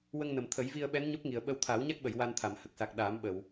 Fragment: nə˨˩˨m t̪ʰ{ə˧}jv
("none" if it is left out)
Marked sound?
ə˨˩˦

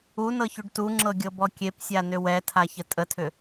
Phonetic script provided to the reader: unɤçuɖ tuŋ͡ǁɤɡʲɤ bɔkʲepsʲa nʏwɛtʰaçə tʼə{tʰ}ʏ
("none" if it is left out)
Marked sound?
tʰ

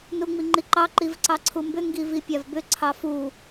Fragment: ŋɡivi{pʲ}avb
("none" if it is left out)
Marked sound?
pʲ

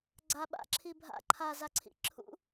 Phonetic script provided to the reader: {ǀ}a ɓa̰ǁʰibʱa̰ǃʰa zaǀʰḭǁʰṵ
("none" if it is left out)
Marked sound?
ɡ͡ǀ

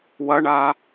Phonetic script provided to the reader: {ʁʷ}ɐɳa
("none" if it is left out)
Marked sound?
w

